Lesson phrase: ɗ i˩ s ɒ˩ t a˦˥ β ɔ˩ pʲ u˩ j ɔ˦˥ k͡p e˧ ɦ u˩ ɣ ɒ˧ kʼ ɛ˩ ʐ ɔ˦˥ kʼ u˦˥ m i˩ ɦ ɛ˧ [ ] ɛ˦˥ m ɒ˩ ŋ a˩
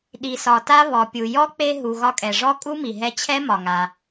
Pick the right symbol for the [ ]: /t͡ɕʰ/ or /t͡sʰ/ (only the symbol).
t͡ɕʰ